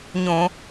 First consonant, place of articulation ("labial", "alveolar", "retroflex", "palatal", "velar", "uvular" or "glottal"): palatal